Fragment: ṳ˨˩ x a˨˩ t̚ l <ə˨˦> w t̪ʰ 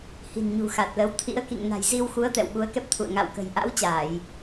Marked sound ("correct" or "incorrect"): correct